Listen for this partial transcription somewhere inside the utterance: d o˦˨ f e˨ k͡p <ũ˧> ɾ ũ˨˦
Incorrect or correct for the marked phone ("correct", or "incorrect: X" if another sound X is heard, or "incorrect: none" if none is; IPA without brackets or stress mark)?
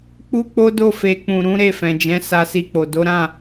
incorrect: ũ˨